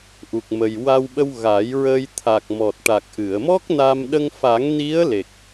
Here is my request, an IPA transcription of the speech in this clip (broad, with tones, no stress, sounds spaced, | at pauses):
ʔ u˨˩ k̚ m ə˨˩ j w a˧ w ɓ ə˧ w ɣ a˨˩˦ j ɹ əː˧ j t̪ʰ a˨˩ k̚ m ɔ˨˩ t̚ ʈ a˨˩ k̚ ʔ ɨ˨˩˨ ə̯ m ɔ˦˥ k̚ n a˧ m ɗ ə˧ ŋ f a˨˩˦ ŋ n i˧˥ ə̯ l e˨˩ k̚